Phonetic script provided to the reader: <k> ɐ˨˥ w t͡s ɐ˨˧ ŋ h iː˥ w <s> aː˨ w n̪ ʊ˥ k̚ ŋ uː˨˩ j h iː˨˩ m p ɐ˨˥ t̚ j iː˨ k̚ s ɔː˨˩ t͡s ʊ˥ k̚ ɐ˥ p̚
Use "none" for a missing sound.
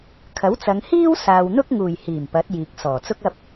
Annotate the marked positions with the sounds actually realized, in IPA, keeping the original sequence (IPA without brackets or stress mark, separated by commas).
kʰ, s